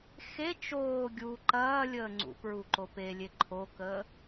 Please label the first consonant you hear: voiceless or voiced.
voiceless